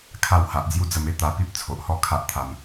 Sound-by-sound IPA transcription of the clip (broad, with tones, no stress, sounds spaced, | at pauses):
kʰ a˥˧ w h a˨ ʔ d͡z j u˦ d͡z ə˧ m e˦ t̪ a˧ p i˦ p̚ t͡sʰ o˨ ʔ h ɔ˥˧ kʰ a˦ ʔ t̪ʰ a˧ m